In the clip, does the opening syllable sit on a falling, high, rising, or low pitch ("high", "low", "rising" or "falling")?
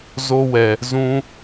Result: high